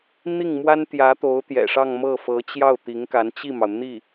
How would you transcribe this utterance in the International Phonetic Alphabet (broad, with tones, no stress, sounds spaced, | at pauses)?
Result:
n̪ i˥˩ ŋ m w a˥ n t̪ j ä˧˥ t̪ o˧˥ ʊ̯ t̪ j ɛ̰˨˩ ʂ ɑ˥˧ ŋ m ɤ˥˩ f ɤ˧˥ t͡ɕ j ɑ˥˩ ʊ̯ t̪ i˧˥ ŋ k a˧˥ n t͡ɕ i˥˩ m ɑ˩ ʊ̯ n̪ i˥˩